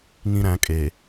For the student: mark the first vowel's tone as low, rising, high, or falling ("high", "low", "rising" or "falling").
high